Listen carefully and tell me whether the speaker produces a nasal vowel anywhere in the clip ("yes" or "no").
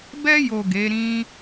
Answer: yes